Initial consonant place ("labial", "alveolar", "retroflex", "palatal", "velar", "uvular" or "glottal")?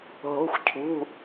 glottal